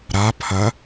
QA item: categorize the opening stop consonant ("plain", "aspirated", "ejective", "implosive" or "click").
aspirated